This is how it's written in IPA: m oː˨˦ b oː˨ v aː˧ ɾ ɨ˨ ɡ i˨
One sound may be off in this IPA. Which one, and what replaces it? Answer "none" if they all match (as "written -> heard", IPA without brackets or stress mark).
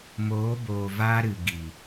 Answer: none